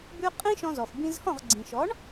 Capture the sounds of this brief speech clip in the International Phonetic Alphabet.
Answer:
b ʉ˧ qʼ ĩ˥ ʃ ɔ̃˧ z ɔ˩ f b ĩ˧ z h ɔ̃˥˩ ʁ ɡ͡ǀ ĩ˩ ʃ ɔ˩˥ ɳ

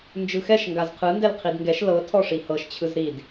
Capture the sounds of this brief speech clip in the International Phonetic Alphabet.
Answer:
n d͡ʒ ɯ x ɛ ʃ ŋ ɡ a z qʰ ɯ n d ɛ l qʰ i d ŋ ɡ ɛ ʃ l ɤ tʰ ɔ ʂ i h ɤ ʃ t͡ɕʰ ɯ z ɾ i d

